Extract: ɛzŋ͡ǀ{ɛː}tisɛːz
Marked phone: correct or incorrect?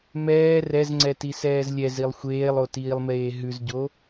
incorrect: ɛ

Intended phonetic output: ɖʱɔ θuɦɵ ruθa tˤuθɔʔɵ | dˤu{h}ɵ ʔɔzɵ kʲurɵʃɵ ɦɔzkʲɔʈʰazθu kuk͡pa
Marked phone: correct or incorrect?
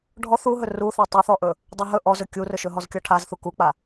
incorrect: ɦ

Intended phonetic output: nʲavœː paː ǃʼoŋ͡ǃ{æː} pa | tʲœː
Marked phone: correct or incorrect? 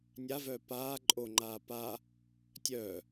incorrect: aː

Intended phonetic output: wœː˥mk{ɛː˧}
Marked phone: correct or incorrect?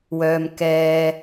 incorrect: ɛː˥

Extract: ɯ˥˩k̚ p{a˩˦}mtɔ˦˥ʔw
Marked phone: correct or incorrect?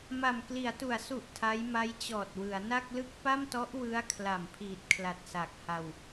incorrect: a˥˩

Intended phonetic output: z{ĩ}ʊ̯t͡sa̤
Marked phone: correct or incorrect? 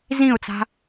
correct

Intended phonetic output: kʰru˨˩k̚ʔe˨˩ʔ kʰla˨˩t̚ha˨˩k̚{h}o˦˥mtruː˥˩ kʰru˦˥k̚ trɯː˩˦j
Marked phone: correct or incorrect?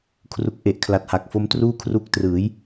incorrect: f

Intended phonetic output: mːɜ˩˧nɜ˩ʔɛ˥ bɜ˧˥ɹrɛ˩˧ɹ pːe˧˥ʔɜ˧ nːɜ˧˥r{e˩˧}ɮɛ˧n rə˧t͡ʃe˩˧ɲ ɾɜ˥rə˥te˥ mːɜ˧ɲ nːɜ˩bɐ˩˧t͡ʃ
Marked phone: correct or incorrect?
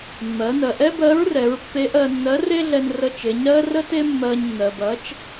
incorrect: e˥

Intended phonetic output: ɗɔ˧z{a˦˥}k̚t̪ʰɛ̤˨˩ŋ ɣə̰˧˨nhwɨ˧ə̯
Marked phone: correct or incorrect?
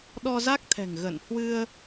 correct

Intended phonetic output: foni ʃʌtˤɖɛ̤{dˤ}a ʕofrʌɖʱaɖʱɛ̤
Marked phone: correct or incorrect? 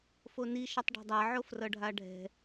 correct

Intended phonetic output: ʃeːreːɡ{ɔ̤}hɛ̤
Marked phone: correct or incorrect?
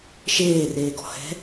correct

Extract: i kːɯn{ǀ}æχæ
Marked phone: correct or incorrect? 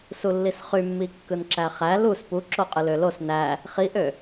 incorrect: ǁ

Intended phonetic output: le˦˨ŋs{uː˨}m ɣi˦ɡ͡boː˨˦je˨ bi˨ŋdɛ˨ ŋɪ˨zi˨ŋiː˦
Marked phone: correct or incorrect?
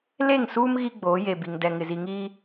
incorrect: uː˦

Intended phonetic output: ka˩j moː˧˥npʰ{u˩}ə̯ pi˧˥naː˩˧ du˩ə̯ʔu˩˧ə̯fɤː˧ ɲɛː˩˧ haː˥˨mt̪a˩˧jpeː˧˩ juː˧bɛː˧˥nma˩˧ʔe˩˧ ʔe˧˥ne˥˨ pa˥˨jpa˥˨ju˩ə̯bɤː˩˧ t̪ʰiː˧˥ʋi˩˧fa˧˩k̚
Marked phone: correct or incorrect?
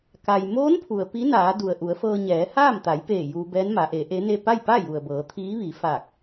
correct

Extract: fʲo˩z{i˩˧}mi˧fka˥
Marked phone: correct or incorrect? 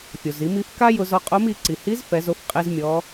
correct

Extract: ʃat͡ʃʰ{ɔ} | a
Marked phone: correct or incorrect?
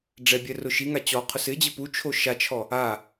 correct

